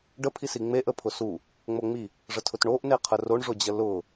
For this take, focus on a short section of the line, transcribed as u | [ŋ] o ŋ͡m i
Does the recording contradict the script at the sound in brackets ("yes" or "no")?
yes